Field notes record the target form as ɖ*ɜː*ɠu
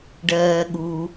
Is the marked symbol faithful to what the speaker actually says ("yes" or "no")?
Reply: yes